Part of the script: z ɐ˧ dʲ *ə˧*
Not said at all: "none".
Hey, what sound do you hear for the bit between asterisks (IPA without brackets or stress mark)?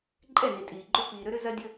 ə˧